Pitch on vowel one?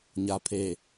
low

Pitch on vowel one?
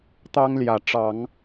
high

